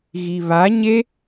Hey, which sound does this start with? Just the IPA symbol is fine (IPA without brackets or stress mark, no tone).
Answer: ɣ